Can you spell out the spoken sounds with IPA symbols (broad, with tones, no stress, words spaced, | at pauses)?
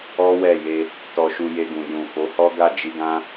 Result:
ɔ˦wɛ˦˨je˧ | tɔ˧ʃu˧je˧ɡũ˨ jũ˨fo˨˦hɔ˦ ɡa˦˨d͡ʒi˧ɡã˦